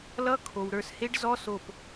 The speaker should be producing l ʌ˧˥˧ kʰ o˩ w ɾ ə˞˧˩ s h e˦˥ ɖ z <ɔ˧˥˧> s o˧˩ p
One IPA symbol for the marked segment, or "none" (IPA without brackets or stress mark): ɔ˧˥˧